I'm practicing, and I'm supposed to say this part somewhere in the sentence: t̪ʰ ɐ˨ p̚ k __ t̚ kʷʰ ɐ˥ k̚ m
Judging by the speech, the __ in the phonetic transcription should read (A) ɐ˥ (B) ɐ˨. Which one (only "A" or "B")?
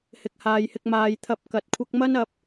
B